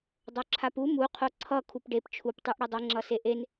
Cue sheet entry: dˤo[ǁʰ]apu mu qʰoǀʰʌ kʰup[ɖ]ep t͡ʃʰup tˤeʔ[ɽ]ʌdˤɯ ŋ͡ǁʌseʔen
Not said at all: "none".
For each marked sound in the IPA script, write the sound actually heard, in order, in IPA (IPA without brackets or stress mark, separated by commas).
ǁʰ, ɖ, ɽ